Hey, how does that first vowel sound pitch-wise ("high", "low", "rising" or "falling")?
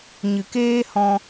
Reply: low